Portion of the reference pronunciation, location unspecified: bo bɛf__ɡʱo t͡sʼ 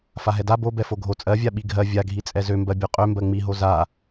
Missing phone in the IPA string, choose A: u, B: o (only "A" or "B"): B